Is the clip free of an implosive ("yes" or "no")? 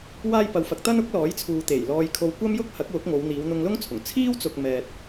yes